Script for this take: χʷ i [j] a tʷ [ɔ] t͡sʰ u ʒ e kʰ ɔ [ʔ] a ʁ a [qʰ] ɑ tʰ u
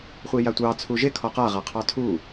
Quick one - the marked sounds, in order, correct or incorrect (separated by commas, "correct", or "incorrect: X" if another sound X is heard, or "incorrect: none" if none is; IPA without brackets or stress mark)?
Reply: correct, incorrect: ɑ, incorrect: q, correct